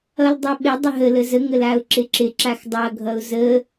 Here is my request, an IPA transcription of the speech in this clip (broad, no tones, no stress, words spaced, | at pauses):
ʌldˤʌɓɪ dˤəɦə ləzə ŋəlaʊ̯ǁɪǁɪ ǁaxdˤʌ ɡʱʌʊ̯zə